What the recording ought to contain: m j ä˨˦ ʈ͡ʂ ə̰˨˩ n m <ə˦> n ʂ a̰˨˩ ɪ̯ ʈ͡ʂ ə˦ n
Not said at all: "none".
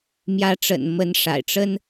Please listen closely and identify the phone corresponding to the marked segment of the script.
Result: ə˨˦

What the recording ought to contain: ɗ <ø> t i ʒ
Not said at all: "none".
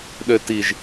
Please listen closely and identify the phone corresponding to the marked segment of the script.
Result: ø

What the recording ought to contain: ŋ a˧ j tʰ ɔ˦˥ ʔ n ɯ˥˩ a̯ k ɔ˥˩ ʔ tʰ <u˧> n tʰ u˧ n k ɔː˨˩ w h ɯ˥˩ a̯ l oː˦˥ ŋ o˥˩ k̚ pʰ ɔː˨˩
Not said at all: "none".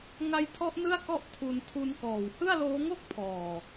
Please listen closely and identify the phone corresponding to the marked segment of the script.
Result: u˧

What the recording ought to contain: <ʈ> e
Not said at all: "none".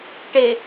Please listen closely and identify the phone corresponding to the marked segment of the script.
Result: ʈ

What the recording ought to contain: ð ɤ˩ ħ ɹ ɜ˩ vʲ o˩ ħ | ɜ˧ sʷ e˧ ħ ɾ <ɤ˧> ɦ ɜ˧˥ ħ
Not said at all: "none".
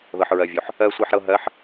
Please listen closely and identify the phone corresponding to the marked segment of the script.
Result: ɤ˧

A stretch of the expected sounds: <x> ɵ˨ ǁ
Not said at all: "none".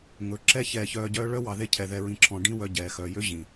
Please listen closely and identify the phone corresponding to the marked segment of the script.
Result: ŋ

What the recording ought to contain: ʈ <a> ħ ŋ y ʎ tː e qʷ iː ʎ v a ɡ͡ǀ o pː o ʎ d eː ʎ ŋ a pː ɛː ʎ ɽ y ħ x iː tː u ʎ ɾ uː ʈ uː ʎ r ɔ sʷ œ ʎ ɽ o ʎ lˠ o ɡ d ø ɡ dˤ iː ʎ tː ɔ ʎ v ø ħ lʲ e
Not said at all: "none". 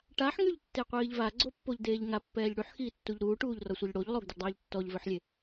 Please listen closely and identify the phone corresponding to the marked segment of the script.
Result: a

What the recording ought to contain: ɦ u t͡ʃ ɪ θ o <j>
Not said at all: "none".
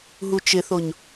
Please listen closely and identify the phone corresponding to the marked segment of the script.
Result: ɲ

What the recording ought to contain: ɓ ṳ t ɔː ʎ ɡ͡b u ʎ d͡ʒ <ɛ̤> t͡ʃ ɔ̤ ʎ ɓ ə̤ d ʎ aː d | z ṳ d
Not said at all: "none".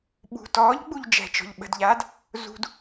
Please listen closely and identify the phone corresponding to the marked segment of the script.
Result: ɛ̤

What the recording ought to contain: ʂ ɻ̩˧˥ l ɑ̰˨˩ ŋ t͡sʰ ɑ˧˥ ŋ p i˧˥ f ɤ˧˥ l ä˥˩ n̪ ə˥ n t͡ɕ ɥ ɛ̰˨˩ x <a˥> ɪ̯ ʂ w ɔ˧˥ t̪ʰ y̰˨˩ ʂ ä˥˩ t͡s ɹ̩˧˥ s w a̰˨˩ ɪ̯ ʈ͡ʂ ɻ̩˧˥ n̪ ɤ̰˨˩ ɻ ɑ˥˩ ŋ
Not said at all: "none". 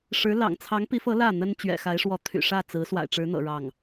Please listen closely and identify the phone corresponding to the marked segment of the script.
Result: a˧˥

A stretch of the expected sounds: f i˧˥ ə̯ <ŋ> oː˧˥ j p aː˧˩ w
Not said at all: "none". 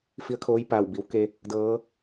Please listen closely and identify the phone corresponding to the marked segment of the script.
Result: kʰ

